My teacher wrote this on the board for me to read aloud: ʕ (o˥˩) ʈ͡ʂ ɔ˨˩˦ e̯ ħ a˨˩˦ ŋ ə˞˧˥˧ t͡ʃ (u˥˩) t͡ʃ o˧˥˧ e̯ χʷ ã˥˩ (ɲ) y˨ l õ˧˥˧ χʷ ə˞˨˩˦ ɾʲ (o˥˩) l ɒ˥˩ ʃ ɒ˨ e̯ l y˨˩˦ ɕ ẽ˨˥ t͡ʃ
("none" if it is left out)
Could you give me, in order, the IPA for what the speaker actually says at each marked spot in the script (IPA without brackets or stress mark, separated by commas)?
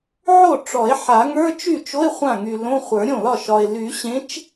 o˥˩, y˥˩, ŋ, õ˥˩